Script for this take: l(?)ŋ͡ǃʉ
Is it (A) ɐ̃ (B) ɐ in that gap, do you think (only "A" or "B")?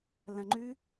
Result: A